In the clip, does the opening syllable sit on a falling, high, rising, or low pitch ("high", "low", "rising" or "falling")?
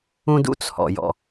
high